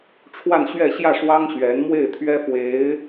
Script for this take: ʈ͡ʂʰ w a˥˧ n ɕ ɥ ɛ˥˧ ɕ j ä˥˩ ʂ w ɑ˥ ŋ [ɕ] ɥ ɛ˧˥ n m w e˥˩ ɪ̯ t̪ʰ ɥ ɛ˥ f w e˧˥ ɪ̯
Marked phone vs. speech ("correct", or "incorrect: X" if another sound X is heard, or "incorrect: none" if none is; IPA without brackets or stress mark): correct